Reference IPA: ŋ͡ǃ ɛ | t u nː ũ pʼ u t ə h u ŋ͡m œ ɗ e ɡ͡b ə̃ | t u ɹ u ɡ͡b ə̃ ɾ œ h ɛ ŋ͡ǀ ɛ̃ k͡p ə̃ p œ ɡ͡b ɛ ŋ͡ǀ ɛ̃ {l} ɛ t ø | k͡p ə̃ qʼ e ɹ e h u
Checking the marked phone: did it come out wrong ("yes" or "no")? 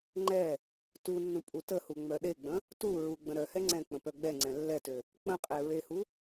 yes